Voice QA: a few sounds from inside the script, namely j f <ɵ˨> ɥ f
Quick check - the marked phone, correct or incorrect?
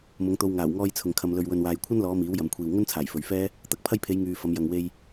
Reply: correct